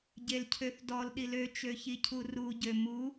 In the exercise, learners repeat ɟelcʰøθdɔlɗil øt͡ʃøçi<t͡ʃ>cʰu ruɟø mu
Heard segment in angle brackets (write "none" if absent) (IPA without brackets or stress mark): none